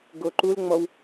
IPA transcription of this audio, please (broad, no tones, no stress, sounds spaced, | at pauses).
ɡ o ǃ u l ŋ͡m ɔ w